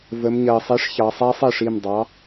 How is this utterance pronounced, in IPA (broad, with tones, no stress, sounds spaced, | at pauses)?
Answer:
v ə˩˧ m ɲ ɜ˩ sˤ i˩˥ ʂ ç ɑ˩˧ sˤ a˦˥ sˤ e˥˩ ʂ i˥˩ m dˤ ɑ˩˥